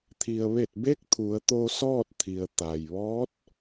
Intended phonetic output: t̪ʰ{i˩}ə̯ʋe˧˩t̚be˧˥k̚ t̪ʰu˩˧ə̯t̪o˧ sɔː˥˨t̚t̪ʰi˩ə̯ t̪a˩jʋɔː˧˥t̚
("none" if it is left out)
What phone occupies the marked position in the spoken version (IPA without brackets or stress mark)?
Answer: i˩